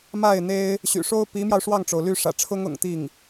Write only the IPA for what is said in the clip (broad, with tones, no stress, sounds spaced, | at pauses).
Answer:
m a˥˩ ɪ̯ n̪ e˥ ɪ̯ | ɕ y̰˨˩ ʂ o˥ ʊ̯ p i˧˥ m j ɑ˧ ʊ̯ ʂ w ɑ˥˩ ŋ ʈ͡ʂ o˩ ʊ̯ l y˥˩ ʂ ä̰˨˩ ʈ͡ʂʰ ʊ˥ ŋ ʊ̰˨˩ ŋ t̪ i˥˩ ŋ